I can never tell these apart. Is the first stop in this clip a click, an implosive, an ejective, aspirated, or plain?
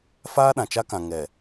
implosive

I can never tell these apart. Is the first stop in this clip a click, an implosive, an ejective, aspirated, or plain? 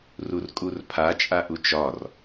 ejective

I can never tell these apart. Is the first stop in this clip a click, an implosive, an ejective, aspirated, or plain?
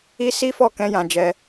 plain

